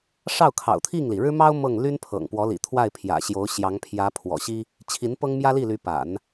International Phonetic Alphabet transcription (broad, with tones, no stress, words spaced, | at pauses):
ʂɑ˥˩ʊ̯kʰɑ̰˨˩ʊ̯t̪ʰi˥˩ŋli˩ ɻɻ̩˥mɑ˥ʊ̯ mɤ˥˩ŋ ly˥npʰɤ̰˨˩ŋpwɔ˧˥lḭ˨˩ t̪ʰwa˥˩ɪ̯pʰjä̰˨˩ɕjo˧˥ʊ̯ ɕjɑ˧˥ŋpʰjä˧˥pʰwɔ̰˨˩ɕi˥ | t͡ɕʰi˧˥n pɤ˥ŋmjä˥li˥˩ly˧˥ pa̰˨˩˦n